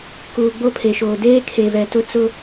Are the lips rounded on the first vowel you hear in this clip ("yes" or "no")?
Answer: yes